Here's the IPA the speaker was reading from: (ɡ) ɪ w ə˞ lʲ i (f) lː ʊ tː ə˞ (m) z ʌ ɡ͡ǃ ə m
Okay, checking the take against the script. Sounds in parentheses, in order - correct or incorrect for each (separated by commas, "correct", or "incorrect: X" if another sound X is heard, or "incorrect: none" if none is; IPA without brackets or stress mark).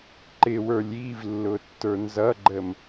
incorrect: ǃ, incorrect: v, incorrect: n